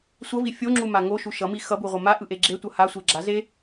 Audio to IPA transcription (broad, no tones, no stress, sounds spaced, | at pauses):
sʷ ʌ v i fʲ o ŋ͡ǁ u m a ŋ o ʃ u ʃ ʌ m i x ʌ b u ʁʷ ʌ m a ʔ ɯ ʔ e ɡ͡ǁ e tʷ ʌ h a sʷ e ɡ͡ǁ a z e